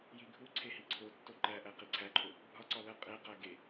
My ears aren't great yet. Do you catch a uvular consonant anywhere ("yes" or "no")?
yes